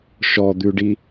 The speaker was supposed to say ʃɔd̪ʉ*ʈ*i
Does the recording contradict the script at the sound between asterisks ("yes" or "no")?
yes